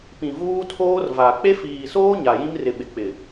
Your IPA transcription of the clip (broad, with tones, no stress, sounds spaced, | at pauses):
p ĩ˨ v uː˦ tʰ oː˦ r v a˨ k͡p e˦ f iː˨ s oː˦ ɲ a˨ j ĩ˦ m r ɪ˨ ɓ ɪ˨ k͡p ɪ˨